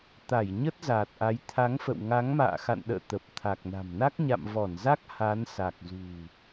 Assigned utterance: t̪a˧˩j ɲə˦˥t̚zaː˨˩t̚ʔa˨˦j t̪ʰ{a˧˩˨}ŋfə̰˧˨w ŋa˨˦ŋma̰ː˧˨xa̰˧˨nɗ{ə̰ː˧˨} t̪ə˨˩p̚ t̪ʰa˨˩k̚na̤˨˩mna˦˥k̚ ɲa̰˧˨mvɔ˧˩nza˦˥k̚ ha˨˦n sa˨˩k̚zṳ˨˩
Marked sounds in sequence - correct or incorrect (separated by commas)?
incorrect, correct